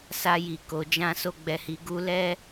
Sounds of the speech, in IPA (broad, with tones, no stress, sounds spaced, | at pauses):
s a˧ j i˨ k o˨ d͡ʒ ã˧ s o˧ ɡ͡b ɛ˨ h i˨ ɡ u˧ l ɛ˦